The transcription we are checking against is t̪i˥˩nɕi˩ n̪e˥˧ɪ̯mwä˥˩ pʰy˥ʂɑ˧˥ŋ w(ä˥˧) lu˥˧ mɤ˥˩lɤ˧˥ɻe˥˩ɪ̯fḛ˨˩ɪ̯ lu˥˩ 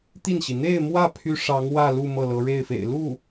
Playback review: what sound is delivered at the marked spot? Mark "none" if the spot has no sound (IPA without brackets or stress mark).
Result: ä˥˧